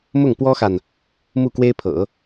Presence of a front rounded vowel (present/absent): absent